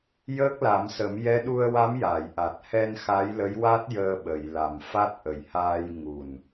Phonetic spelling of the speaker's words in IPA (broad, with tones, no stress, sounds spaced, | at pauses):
j əː˦˥ k̚ l a˨˩˦ m s ə˨˩˦ m j ɛ˧˥ ɗ u˧ ə̯ w a˧˥ m j a˨˩˨ j ʔ a˨˩ t̚ h ɛ˧ n x a˧˥ j l ə˧˥ j w a˦˥ t̚ j əː˧ ɓ ə˨˩˨ j l a˨˩ m f a˦˥ t̚ ʔ ə˨˩ j h aː˧ j ŋ u˨˩ n